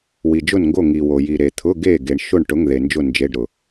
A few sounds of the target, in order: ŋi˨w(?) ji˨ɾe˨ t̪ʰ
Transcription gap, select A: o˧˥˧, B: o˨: B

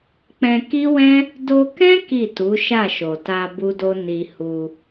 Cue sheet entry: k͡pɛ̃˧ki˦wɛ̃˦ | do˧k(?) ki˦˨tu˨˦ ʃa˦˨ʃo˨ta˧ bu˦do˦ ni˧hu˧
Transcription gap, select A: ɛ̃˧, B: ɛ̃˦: B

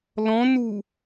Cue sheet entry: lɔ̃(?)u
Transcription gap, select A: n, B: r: A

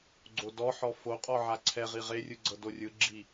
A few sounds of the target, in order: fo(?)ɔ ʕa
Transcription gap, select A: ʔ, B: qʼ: B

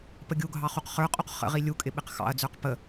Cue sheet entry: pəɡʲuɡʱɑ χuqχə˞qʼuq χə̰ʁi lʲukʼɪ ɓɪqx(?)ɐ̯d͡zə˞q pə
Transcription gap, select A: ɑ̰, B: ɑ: A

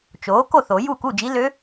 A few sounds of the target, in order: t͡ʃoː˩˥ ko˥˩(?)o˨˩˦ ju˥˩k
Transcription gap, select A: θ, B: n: A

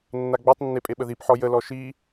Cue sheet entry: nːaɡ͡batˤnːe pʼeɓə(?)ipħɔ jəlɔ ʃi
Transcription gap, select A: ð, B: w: A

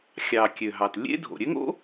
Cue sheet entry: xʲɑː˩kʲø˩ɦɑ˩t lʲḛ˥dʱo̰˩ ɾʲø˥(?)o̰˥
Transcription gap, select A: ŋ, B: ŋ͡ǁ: A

